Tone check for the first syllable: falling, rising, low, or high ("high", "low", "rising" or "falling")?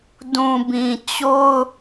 low